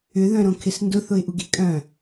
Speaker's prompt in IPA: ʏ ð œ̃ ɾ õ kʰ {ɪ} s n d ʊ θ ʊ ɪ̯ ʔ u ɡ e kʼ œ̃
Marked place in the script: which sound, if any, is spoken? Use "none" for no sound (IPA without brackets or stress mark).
ɪ